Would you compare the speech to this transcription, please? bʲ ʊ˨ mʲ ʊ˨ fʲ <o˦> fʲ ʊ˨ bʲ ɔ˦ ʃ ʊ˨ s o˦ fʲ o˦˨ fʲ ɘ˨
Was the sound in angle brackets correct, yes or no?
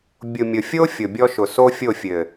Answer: yes